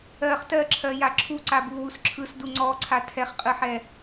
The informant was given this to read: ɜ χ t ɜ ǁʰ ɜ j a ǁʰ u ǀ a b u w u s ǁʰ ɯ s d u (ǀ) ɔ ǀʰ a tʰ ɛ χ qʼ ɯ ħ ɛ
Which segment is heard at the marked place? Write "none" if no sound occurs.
ŋ͡ǀ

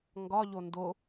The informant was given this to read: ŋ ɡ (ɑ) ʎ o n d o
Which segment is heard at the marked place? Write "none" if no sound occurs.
ɒ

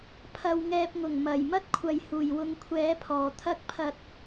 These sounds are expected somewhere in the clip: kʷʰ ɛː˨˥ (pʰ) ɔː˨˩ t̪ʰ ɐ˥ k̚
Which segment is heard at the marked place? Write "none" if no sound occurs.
pʰ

